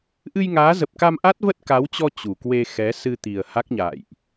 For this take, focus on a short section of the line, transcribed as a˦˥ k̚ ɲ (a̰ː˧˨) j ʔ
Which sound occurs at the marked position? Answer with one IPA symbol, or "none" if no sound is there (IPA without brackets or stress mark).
a̰ː˧˨